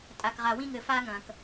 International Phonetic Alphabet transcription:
tʼ a˨ k ʁ a˨ w ĩ˦ ŋ ɘ˨ f a˦ ŋ ɐ̃˨ k

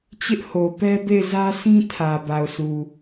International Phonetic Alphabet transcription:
t͡ɕ ɪ˦ ʔ h o˨ p ɛ˦ b e˦˨ ɪ̯ z ä˦ s ĩ˦ tʰ ä˨ b a˨ ʊ̯ sʰ u˨

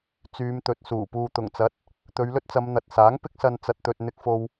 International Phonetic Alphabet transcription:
t͡s yː˨˧ m t̪ ɵ˨ t̚ s uː˨˩ p uː˨ t̪ ʊ˨˩ ŋ t͡s ɐ˨˥ t̚ | t̪ ɵ˨˧ ɥ l ɵ˥ t̚ t͡s ɐ˨˧ m n̪ ɐ˨ t̚ s aː˨˥ ŋ p ɪ˥ k̚ s ɐ˧ n t͡s ɐ˧ t̚ t̪ ɵ˧ t̚ n̪ ɪ˧ k̚ f o˧ w

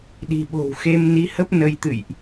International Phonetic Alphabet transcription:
ɗ i̤˨˩ ɓ o̤˨˩ w x e˧ m n i˨˦ h ə˦˥ p̚ n ə˧ j t̪ ɨ̰˧˨ j ʔ

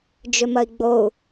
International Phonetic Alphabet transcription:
d͡ʒ ʏ m ɐ i̯ ɡ͡b o u̯

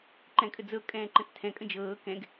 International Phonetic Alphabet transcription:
ǃ ɛ̃ kʼ ə d͡z ɤ kʼ ɛ̃ː ǃ ə̃ t͡s tʰ ɛ̃ kʼ ə̃ d͡ʒ ɤː k ɛ̃ ɡ

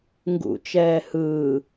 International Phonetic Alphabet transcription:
ŋ ɡ ṵ t͡ʃ ɛː h ɯː

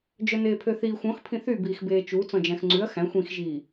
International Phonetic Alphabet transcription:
d͡ʒ œ n eː pʰ ø θ iː xʷ ɔ̃ x pʰ ĩ θ y b iː x b eː t͡ʃ u t͡s ɔ̃ d͡ʒ æ̃ x ŋ͡ǀ ʉ ɐ̯ x æ̃ xʷ ĩ x ʒ iː

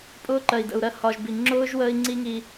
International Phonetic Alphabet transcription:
pʼ ʊː˦ ǃ ɜ˨ i̯ d ə̰˨ u̯ ɾ ɜ˦ h ɒ˨ ʒ b i˨ ŋ͡ǁ ʊː˦ ʒ w əː˦ i̯ ŋ͡ǀ i˦ ŋ i˦

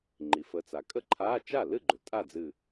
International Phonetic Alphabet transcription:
ŋ͡ǃ i˩ f ə˨˦ t͡s a˩ kʼ ə˥˩ ǃʰ aː˧˥˧ t͡ʃ a˥˩ l ɨ˥˩ ɡ͡ǃ ʏ˩ tʼ a˥˩ d͡z ɨ˧˩

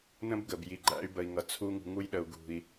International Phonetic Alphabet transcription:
n ə̃˦ b ɡ ə˨ b j i˨ ɡ͡ǃ æ̰˧ y̯ b ə˨ i̯ ŋ ʌ˨ t͡sʰ u˧ ŋ ṳ˨ ŋ u˧ j ɗ ə˨ u̯ ɡ ṳ˨ i̯

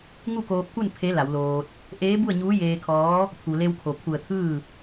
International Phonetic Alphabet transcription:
ŋ u˥˨ k oː˧ p̚ k u˥˨ n pʰ e˧˥ l a˩˧ w l oː˧ t̚ | ʔ eː˧˥ b u˥˨ ə̯ ɲ uː˧˥ j eː˧ kʰ ɔː˧˥ | pʰ u˩ l e˧ w kʰ o˩ pʰ u˧˩ ə̯ t̪ʰ ɯː˥˨

